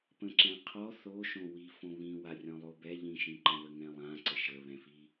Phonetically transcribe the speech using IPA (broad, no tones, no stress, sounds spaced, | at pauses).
p ə̃ ǁ ɛ̃ qʰ ɔ θ o ʃ õ w i f õ β ĩ w a rʲ ɔ̃ lˠ o b ɛ ʎ ĩ ʃ ĩ ǃ ə̃ β ə ŋ ɛ̃ lˠ ã ǀ ə ʃ ə β ɛ̃ f i